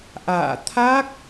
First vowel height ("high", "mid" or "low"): low